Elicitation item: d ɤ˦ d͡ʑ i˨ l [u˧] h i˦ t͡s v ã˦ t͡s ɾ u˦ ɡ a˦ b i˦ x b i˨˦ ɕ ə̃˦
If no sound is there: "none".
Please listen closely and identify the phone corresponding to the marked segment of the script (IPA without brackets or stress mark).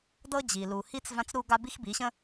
u˨